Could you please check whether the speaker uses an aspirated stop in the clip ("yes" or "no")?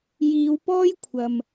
yes